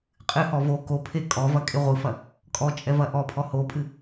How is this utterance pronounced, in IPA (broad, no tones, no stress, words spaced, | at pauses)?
qʼɨhɔ vo kopʰe kʼɔvɐkʼe ʁʷɨfɐ | kʼɔt͡ʃʼɛvɐ ʔɔpʰɔ hopʼɨ